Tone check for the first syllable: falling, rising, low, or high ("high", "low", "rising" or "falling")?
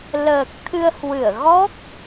low